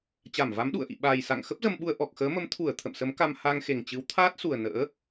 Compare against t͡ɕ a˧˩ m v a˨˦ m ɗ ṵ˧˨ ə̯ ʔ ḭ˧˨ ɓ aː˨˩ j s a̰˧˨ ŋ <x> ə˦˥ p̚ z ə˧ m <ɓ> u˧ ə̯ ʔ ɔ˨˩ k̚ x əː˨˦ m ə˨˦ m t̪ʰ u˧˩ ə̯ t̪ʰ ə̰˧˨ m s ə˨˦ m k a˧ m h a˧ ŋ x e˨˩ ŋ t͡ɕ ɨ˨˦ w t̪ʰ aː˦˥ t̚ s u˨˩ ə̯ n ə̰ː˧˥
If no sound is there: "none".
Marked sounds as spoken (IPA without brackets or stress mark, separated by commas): x, ɓ